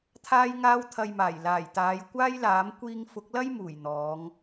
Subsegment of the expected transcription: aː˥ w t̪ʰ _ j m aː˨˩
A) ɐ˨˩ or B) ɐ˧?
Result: B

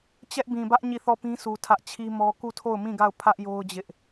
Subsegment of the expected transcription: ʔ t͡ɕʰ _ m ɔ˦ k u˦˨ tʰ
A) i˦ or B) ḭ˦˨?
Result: A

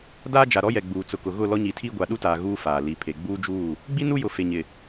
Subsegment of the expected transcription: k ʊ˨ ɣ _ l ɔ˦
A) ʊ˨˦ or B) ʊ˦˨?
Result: B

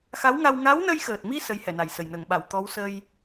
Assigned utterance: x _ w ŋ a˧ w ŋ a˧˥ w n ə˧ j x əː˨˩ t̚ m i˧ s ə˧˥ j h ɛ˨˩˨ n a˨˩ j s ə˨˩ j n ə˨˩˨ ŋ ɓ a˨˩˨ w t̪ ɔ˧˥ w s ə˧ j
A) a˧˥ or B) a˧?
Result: A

